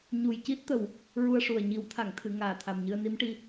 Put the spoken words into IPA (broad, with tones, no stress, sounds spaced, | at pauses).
ɲ u˨˩ j c i˦˥ t̚ t̪ ə˨˩ w | ɹ u˧ ə̯ ʂ u˨˩ ə̯ ɲ i˨˩˦ w t̪ʰ a˨˩˨ ŋ t̪ʰ ɨ˨˩˨ ŋ aː˨˩ t̪ʰ a˨˩ m ɲ ɨ˧ ə̯ n i˧˥ m ʈ i˧